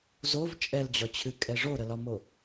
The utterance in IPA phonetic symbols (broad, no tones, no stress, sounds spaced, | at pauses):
z o v t͡ʃʼ ɛ l d͡ʑ ɒ t͡ɕʰ ɨ kʼ ɛ ʐ o ɾ ə l ɒ m o